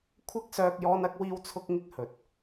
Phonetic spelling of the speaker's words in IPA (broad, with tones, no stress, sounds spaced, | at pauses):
kʷʰ ɐ˥ k̚ s œː˧ k̚ j ɔː˥ n ɐ˥ k̚ w iː˥ w t͡sʰ ʊ˥ k̚ ŋ ɪ˥ k̚ h ɵ˨˥ t̚